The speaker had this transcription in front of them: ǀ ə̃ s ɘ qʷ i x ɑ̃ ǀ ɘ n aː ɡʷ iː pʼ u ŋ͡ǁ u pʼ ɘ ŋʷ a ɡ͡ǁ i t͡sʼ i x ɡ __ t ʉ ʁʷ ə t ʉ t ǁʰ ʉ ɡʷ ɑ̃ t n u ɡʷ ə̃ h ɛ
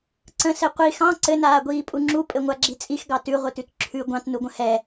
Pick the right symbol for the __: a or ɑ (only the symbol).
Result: ɑ